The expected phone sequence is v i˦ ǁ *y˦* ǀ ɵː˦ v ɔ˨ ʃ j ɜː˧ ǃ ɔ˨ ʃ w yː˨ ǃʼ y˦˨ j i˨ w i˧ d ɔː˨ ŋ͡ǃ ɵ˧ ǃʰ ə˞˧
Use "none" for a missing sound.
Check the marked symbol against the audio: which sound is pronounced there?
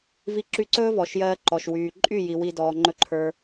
y˦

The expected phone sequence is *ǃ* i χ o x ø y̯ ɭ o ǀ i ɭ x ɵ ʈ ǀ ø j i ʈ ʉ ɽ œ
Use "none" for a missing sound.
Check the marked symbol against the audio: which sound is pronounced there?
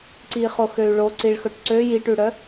ǀ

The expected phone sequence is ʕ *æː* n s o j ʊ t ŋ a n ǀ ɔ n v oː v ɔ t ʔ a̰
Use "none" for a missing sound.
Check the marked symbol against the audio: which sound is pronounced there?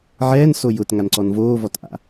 ɛː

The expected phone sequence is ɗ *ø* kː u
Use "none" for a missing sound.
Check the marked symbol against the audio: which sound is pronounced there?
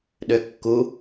ø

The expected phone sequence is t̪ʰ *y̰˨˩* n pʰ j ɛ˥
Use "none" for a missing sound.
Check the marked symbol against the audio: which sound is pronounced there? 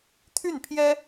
y˥˩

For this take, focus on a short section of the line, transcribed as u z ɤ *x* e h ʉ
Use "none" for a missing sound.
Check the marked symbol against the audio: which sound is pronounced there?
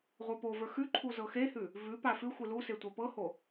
x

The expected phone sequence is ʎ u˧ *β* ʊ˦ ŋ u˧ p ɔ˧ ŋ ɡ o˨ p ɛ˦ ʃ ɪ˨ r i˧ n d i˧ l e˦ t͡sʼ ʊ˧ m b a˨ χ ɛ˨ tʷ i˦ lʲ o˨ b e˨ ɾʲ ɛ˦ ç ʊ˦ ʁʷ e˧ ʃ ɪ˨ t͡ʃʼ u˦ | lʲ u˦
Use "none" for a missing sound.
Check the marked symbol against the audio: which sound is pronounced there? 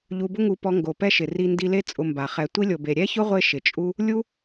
b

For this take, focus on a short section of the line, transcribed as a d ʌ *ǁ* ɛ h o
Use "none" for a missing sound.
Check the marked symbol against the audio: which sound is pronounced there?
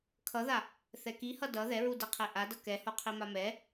k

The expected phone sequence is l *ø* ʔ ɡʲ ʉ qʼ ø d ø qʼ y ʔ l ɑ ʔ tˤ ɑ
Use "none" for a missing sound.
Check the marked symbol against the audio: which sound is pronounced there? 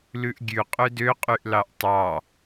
ʉ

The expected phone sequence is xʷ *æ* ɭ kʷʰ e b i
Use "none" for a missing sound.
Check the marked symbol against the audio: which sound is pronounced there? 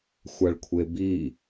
a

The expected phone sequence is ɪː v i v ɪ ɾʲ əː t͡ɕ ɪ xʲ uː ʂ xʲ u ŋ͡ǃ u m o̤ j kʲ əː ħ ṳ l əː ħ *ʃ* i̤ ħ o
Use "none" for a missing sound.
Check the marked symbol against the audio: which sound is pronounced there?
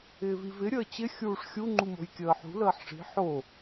ʂ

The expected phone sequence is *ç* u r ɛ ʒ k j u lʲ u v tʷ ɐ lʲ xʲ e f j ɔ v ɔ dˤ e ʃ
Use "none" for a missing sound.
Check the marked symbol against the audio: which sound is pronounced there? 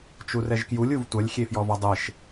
t͡ʃ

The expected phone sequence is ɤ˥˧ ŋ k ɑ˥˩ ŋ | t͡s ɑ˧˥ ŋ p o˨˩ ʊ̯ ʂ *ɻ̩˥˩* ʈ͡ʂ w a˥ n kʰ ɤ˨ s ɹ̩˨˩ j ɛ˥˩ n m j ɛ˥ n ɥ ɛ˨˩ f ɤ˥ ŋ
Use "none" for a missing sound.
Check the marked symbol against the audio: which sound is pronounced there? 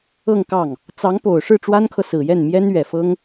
ɻ̩˥˩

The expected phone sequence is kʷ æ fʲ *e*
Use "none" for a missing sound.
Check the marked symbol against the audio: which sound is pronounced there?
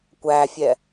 ɛ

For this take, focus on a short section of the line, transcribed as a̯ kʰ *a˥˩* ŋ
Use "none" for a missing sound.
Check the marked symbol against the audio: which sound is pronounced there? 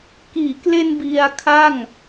a˥˩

